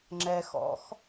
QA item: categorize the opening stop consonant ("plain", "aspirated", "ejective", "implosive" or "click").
click